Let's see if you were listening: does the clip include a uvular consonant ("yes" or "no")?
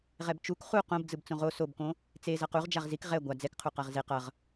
yes